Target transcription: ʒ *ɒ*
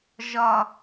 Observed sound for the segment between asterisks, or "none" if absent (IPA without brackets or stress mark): ɒ